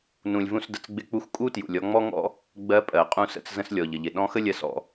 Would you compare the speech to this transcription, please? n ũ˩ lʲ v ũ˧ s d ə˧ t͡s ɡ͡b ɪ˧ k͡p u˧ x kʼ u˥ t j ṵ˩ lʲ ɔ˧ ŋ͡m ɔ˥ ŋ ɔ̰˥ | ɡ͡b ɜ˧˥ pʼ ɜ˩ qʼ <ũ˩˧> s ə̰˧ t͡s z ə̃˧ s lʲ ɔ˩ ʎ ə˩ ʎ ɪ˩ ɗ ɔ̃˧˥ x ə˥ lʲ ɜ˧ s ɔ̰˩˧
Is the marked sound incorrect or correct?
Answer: incorrect